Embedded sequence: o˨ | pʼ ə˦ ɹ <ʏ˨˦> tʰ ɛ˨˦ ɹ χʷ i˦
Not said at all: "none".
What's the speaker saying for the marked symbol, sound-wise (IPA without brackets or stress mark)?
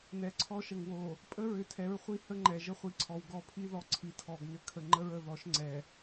ʏ˨